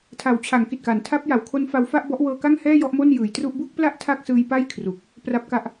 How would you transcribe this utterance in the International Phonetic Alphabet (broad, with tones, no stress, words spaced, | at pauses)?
tʰa˩˦wt͡ɕʰa˩˦ŋki˨˩t̚ka˩˦n tʰa˦˥p̚ja˩˦wkʰo˦˥nfa˦˥w fa˥˩ʔbɔ˦˥ʔwɤː˧ ka˥˩ŋhɛː˥˩ jɔ˥˩ʔmo˥˩njɯː˩˦jtru˥˩ʔ bu˥˩k̚pla˥˩ʔ tʰa˥˩k̚sɯː˧j pa˥˩jkʰru˨˩k̚ | pra˦˥p̚ka˦˥ʔ